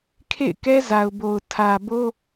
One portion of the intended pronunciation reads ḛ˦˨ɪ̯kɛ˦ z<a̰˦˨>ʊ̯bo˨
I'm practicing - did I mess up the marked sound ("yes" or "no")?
yes